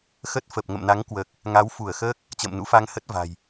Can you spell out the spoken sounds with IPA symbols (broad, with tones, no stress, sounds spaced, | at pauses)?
x ə˦˥ t̚ f ə˨˩ p̚ ŋ ə̰˧˨ m n a˨˦ ŋ k w əː˨˩ k̚ | ŋ a˨˦ w f u˧˩ ə̯ x əː˦˥ k̚ | t͡ɕ ə̰ː˧˨ m n ṵ˧˥ f a˧ ŋ h ə˦˥ t̚ v a̤˨˩ j